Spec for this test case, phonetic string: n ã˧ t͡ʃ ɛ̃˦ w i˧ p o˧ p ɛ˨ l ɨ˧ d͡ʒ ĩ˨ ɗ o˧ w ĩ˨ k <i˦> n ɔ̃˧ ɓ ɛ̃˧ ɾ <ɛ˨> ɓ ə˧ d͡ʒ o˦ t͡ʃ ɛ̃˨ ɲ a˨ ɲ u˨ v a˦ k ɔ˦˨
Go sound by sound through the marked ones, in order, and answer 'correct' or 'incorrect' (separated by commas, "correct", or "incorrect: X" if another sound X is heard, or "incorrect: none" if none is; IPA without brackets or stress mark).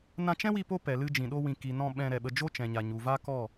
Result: incorrect: i˨, correct